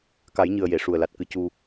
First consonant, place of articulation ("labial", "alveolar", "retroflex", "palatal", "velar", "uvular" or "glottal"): velar